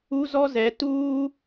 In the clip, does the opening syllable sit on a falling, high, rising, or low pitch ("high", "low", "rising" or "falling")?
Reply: high